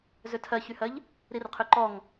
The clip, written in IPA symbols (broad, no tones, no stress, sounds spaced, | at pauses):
z ø tʰ ɜ ç y h ɜ ʎ | ɾ i r qʰ ø ǃ ɔ ŋ